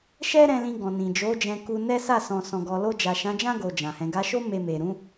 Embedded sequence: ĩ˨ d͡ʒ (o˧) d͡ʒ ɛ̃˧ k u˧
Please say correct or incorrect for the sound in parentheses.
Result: incorrect: o˨˦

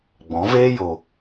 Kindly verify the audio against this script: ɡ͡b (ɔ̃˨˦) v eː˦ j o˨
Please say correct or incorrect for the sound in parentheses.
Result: correct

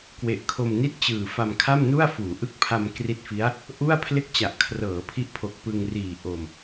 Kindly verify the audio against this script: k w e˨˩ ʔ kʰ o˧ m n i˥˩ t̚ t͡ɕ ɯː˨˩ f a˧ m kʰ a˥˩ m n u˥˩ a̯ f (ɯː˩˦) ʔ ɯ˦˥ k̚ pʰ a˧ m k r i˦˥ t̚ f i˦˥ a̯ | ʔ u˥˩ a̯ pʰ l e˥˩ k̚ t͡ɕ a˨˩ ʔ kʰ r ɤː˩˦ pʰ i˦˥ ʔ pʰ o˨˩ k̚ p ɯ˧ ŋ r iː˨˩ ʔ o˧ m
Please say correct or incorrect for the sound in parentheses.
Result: incorrect: uː˩˦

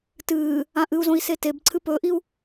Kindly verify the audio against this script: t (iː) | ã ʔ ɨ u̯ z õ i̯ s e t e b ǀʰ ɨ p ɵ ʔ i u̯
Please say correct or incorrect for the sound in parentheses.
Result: incorrect: ɨː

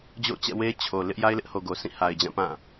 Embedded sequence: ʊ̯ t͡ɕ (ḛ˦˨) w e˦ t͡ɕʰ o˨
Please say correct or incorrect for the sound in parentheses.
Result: incorrect: ɛ̰˦˨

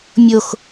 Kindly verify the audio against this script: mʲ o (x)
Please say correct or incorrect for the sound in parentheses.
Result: correct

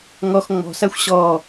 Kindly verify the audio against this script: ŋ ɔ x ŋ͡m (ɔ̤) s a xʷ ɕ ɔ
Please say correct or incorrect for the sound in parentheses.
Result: correct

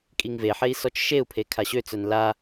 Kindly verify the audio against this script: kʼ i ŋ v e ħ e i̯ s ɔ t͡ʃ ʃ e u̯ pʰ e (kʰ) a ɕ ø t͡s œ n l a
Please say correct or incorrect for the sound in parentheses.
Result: correct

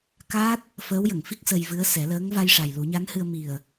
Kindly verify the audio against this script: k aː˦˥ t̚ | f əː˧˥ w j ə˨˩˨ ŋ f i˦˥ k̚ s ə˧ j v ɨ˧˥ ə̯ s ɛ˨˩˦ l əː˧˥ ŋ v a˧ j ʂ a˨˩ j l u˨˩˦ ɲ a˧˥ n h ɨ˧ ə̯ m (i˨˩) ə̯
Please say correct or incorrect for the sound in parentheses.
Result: correct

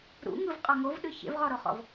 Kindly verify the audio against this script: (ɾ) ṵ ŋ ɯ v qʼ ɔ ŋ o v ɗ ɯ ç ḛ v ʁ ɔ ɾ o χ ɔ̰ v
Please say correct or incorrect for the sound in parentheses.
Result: correct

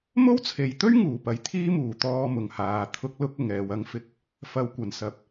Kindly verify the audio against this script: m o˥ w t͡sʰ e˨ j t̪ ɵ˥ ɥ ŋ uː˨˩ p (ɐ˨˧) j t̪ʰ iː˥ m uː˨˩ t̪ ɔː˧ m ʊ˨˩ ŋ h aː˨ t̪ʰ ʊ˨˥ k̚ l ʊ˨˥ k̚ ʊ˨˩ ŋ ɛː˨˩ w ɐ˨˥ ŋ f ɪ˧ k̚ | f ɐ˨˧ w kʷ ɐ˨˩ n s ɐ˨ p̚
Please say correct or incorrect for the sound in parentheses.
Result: correct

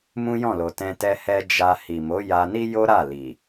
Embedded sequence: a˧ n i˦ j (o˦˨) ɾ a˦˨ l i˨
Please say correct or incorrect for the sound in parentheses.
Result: incorrect: o˦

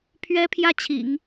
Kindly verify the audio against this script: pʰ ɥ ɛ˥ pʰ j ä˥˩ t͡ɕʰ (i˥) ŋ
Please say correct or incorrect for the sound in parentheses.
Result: incorrect: ḭ˨˩˦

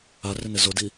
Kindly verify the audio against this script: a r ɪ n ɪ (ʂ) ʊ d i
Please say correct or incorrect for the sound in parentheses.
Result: incorrect: z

